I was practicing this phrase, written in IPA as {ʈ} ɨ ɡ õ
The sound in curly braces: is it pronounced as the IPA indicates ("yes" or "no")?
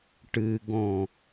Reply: yes